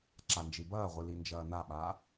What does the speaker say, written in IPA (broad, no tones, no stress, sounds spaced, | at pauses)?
ǁ a n d͡ʒ i b ɐː ʁʷ ɨ l i n d͡ʒ ɐː n a ɓ aː